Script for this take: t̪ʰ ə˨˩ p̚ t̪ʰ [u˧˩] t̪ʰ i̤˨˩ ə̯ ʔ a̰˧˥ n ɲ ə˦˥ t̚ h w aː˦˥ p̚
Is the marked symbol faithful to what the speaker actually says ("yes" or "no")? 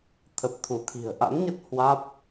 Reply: yes